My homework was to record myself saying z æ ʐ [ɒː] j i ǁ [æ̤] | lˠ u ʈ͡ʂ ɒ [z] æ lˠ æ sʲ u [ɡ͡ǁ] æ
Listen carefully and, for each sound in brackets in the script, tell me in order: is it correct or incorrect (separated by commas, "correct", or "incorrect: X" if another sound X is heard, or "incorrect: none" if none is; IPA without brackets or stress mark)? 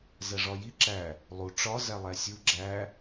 incorrect: ɒ, incorrect: æ, correct, correct